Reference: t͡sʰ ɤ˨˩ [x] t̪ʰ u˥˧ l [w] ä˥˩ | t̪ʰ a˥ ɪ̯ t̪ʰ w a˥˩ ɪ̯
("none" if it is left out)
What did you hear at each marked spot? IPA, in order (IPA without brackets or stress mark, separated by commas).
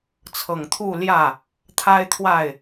ŋ, j